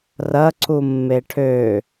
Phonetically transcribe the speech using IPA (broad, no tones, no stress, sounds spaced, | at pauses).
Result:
r ɐ ǀ u mː e ʈʰ ø